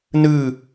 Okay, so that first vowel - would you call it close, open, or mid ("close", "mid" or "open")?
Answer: close